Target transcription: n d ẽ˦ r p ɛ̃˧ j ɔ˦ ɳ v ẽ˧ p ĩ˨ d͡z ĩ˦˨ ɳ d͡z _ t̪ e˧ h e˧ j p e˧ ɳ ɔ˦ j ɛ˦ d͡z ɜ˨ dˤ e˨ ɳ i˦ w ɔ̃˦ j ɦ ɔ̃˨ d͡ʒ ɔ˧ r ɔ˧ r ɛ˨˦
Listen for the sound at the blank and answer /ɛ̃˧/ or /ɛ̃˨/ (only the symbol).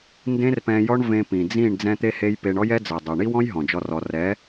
ɛ̃˧